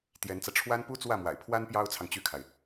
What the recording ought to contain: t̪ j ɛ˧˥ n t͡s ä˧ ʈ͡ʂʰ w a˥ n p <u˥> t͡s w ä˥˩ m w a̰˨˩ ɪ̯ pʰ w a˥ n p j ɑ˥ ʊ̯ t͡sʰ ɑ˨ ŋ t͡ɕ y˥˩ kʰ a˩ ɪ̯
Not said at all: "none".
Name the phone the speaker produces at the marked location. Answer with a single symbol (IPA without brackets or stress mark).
u˥